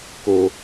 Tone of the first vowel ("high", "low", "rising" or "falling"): low